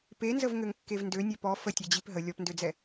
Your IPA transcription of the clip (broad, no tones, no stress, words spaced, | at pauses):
penzəv ŋøŋkːevndø nʲœpɔ fətʲɛ d͡ʑipɦə lʲɔpndød͡zɛ